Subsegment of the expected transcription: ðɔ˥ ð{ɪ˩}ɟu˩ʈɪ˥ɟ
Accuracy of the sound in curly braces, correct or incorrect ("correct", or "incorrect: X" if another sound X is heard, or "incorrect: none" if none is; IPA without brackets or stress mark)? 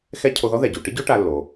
incorrect: ɛ˩